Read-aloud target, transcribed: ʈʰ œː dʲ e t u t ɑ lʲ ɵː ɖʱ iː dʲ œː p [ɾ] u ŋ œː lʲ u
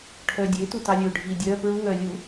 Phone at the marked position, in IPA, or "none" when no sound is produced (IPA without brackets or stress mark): ɹ